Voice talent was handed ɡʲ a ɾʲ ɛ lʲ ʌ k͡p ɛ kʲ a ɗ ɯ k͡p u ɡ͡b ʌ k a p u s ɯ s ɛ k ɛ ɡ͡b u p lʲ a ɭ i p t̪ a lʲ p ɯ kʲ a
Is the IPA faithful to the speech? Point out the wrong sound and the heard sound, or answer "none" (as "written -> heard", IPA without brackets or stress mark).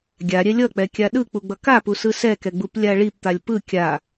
none